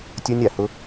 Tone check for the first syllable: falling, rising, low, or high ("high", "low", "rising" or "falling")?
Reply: high